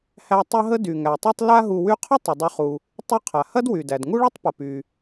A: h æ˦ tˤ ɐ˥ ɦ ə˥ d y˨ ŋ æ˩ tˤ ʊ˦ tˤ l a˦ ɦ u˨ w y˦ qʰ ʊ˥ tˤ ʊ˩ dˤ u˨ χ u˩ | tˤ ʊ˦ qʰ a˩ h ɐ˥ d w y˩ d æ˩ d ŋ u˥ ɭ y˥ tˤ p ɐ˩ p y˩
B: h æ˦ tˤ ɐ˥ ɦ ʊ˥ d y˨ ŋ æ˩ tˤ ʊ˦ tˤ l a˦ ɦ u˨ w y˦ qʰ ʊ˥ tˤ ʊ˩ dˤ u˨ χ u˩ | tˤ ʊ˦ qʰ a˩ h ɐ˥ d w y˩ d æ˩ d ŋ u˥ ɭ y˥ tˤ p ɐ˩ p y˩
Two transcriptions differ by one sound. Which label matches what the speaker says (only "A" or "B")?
A